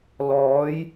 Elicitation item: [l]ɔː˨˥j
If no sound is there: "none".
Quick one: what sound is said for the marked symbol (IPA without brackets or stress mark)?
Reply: l